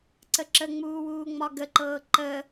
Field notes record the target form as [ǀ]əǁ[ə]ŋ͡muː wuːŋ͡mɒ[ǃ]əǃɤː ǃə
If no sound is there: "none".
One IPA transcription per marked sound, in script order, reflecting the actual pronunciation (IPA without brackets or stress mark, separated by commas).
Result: ǀ, ə, ɡ